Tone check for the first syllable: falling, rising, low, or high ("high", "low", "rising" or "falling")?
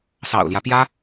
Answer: low